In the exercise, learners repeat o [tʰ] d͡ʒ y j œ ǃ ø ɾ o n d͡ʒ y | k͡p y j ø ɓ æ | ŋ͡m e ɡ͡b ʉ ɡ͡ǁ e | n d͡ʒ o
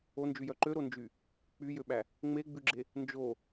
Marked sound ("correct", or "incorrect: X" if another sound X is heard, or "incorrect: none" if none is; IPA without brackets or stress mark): incorrect: n